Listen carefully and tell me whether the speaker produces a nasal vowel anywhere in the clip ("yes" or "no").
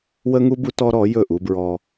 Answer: no